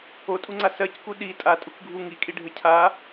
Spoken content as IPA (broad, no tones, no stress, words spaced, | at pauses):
otʼuŋ͡ǀa sɜcku ɗi tʼatʼukɡʱu ŋikʼiɖʱɘ cʰa